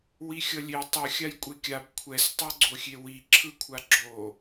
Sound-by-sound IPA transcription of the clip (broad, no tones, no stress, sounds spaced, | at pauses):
w i xʲ ʌ lʲ e tˤ ɯ xʲ a j kʷʼ e kʲ a b kʷʰ ɛ s tˤ o ɡ͡ǀ o xʲ e w i ǁʰ ɯ kʷʰ a ɡ͡ǁ o